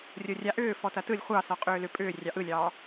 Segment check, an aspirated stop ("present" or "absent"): absent